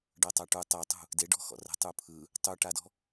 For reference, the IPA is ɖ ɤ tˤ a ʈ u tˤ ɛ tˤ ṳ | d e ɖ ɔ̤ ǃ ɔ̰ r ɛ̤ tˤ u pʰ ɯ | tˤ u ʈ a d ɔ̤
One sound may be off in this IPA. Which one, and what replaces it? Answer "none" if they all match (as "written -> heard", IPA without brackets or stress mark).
ǃ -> x